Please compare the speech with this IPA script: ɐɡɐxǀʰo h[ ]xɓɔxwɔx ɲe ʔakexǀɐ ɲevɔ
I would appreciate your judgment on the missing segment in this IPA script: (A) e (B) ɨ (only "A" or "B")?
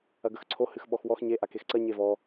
B